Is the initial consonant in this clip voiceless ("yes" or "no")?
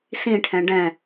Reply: yes